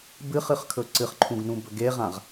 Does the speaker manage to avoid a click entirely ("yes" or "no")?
no